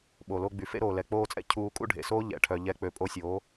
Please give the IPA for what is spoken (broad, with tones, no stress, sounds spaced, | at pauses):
ɓ o˨ l o˧ ɡ͡b y˨ f ḛ˦ ɾ oː˨ l ɛ˨ k͡p oː˧ t͡sʼ ɛ̰˦ cʰ uː˧ kʼ ṵ˦ ɖʱ ḛ˨ s oː˦ ʎ ɛ̰˨ ʈʰ œ˨ ʎ ɛ˧ k͡p ø˨ pʼ o˧ sʲ oː˨˦